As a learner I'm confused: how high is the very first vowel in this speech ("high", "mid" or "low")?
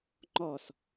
mid